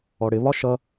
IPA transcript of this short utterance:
ɔ ɽ ɪ β ɒ ʃ ʌ

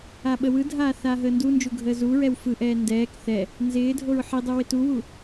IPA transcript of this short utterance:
a ɓ ə w ɯ dʱ aː θ aː ɦ əː n d u n d͡ʒ u ɡʱ əː z u ɹ ɛ w f ɯ ʔ ɛː n d ɛː k θ ɛ | n z ɪː dʱ o ɹ ħ i dˤ u w ɪ t u w u

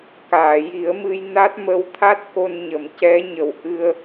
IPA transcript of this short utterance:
k aː˨˩˨ j i˨˩˦ ə̯ m ɨ˧ j n a˦˥ t̚ m ə˧˥ w t̪ʰ a˦˥ t̚ k o˧ n ɲ ə˨˩˨ m c ɛ˧˥ ɲ ə˨˩ w ʔ ɨ˧ ə̯

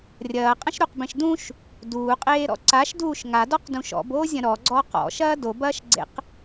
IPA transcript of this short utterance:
rʲ ɐː qʼ ɐ̃ ʃ ɾ u q b ẽ ʃ d ũ ʃ | d uː qʼ eː ɾ ɔ̰ ǀ a ʃ d uː ʃ ŋ a d ɔ q d ũ ʃ ɔ̰ b oː zʲ ɐ̃ ɾ ɔ ɡ͡ǀ ɔː q ɔ̰ ʃ ɐː d o b ɐː ʃ ɡ͡ǀ ḛ q

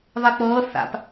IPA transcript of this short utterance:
ðˤ i k͡p ɤː θ a̰ p

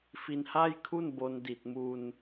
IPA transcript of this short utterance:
f i˧ n h a˥˩ j kʰ u˥˩ n b o˧ n d i˨˩ t̚ m u˧ n

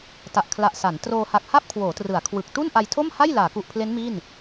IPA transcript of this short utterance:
t a˨˩ ʔ kʰ l a˨˩ ʔ s a˩˦ n t r oː˧ h a˨˩ k̚ h a˥˩ p̚ kʰ w oː˩˦ t r ɯ˩˦ a̯ kʰ w ɯ˨˩ k̚ t u˥˩ n ʔ a˧ j tʰ o˥˩ m h a˥˩ j l aː˩˦ k u˨˩ ʔ pʰ l e˦˥ n m i˥˩ n

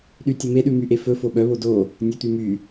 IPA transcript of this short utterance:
ɗ y tʲ ɵ m e ɗ ʉ m y ʔ e f ɵ f o ɓ œ β o d o | nʲ œ t̪ y m y

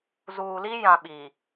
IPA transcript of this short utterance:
z uː˨ l i˦ j ã˨ ɓ i˨

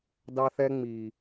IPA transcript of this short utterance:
d ɑ˦ θ ɛ˦ ŋ͡m i˨

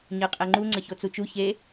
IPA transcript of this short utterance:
ɲ ɜ qʼ ɛ ŋ͡ǃ u ŋ͡ǀ ə ç o t͡s u t͡ʃ u ç e

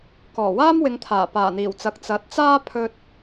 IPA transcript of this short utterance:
k ɔː˨˩ w aː˥ m w ɪ˨˧ ŋ t̪ʰ aː˨˩ p aː˨˩ n̪ iː˨˩ w t͡s ɐ˨˥ k̚ t͡s ɐ˨˥ t̚ t͡s aː˥ pʰ ɵ˧ t̚

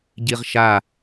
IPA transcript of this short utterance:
ɟ i ʁ ʃ a

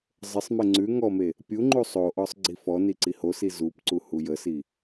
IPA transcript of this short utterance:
zˤ ə sˤ m e ŋ͡ǀ ʉ ŋ ɔ m e | pʲ u ŋ͡ǃ u sˤ o ʔ ɔ sˤ ɡ͡ǀ i f ɔ n i ǀ i h o s i z u p ǀ u h u j ə s i

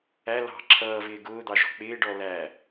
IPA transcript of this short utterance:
æ l ɑ̤ ǁʰ ʌː v ɪː ɡ ʊː d̪ ɑ ʒ ɔ̤ k͡p ɪː ɖ ɔ l æ

